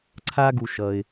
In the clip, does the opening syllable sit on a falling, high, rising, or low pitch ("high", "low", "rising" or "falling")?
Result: high